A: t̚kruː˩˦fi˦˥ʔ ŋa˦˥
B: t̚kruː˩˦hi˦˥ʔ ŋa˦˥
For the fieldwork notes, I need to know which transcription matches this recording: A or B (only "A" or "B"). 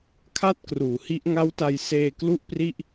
B